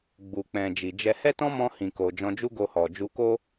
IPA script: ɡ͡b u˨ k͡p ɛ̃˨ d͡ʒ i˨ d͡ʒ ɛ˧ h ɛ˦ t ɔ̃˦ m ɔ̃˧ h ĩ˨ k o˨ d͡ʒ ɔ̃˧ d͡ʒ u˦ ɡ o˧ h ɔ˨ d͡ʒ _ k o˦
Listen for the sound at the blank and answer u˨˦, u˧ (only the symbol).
u˧